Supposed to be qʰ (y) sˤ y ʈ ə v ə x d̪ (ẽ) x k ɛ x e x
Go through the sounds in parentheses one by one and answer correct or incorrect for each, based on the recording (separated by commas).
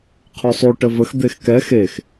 correct, incorrect